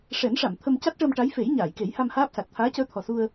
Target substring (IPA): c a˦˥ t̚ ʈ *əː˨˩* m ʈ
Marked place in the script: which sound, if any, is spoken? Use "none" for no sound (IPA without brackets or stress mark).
əː˧